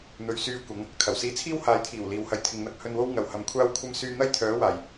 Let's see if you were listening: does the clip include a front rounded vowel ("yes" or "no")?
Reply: yes